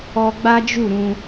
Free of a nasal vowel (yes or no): no